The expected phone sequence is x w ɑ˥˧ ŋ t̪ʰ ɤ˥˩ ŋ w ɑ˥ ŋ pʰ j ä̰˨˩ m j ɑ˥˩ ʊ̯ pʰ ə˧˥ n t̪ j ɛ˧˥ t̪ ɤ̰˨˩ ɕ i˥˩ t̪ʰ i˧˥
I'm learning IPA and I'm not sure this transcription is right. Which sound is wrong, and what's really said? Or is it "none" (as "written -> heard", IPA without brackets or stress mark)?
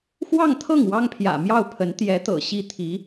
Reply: none